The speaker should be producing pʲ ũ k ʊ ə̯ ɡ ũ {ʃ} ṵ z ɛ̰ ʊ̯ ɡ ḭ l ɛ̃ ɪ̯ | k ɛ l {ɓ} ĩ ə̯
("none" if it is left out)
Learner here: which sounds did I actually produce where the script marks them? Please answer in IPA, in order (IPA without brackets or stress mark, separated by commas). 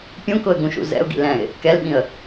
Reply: ʃ, ɓ